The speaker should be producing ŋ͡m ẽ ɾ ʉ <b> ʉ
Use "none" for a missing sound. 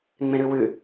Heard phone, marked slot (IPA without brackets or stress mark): w